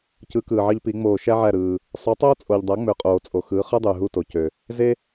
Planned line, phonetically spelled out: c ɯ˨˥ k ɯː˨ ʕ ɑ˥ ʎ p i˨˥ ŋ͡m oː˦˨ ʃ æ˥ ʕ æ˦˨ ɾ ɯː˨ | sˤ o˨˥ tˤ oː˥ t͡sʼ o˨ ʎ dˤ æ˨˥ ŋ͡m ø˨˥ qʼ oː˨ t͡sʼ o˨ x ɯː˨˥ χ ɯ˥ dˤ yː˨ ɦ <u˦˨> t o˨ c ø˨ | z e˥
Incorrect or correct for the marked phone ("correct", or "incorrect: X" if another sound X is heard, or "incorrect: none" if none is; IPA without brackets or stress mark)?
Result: correct